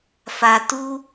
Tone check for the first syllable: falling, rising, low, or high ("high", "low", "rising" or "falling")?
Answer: low